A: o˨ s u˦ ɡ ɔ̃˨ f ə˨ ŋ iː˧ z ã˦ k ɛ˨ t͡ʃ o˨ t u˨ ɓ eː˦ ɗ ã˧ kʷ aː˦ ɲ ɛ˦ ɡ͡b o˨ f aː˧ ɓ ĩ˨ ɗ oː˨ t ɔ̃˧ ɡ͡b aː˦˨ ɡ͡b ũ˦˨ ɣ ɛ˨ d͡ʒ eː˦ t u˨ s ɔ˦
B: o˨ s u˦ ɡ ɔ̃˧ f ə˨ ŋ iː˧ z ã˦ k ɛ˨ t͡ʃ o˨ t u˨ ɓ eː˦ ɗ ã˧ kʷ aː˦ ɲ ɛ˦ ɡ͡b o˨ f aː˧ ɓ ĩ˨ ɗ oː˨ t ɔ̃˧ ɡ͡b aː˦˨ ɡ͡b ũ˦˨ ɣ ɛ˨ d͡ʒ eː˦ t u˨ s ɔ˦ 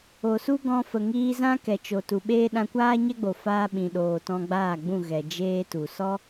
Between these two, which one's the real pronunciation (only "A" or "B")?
B